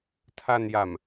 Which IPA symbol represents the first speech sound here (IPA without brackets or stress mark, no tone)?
tʰ